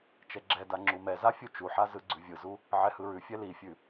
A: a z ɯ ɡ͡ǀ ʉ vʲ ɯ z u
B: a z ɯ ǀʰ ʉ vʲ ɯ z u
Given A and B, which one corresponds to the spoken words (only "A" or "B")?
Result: A